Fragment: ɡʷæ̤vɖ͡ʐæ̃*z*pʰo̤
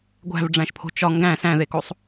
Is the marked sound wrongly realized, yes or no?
yes